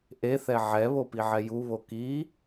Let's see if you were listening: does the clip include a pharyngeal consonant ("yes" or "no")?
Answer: yes